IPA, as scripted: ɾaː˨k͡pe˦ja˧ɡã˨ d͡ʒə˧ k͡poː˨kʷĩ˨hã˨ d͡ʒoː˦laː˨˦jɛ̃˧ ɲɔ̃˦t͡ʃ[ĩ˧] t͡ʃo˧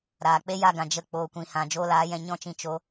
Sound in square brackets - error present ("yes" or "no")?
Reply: no